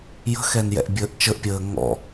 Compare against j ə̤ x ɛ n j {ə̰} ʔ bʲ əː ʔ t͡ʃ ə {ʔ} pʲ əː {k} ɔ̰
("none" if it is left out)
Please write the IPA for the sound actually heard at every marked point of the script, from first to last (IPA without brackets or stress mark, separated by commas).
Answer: ɛ̰, ʔ, ŋ